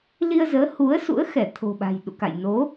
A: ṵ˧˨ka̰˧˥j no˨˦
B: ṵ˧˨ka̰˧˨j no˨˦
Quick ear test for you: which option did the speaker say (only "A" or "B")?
B